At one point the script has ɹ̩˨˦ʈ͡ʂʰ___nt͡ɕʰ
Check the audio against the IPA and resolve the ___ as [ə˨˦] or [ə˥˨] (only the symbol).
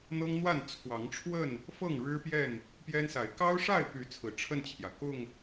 ə˥˨